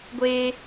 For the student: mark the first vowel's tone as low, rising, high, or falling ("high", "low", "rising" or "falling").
high